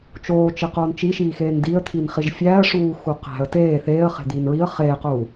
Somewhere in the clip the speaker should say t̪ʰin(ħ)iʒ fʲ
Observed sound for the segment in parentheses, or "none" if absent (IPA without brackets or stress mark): χ